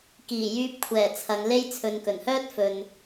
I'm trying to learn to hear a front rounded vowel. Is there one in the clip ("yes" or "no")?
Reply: yes